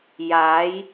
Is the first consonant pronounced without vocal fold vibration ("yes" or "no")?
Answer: no